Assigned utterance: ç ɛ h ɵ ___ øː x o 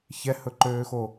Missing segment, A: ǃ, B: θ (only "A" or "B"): A